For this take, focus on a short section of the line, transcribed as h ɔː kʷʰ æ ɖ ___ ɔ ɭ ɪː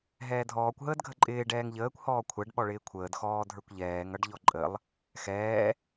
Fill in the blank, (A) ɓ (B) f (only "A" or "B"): A